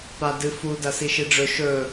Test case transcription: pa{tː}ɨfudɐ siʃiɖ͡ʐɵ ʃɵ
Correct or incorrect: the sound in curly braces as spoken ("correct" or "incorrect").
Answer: incorrect